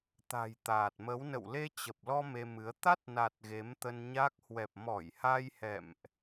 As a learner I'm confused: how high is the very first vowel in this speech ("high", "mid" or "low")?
low